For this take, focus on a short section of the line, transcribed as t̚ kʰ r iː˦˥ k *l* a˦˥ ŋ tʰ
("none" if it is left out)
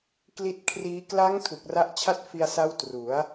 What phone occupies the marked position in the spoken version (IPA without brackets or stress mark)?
l